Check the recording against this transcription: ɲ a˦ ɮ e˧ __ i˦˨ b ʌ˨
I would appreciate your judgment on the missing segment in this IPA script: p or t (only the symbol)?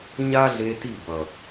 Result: t